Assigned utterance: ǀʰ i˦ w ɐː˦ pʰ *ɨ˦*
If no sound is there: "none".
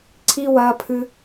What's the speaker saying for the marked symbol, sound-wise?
ɨ˦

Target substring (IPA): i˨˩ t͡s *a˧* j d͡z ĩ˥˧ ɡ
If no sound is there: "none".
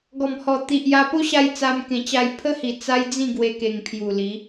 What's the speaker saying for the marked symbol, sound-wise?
a˦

